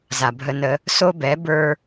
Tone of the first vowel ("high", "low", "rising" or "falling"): low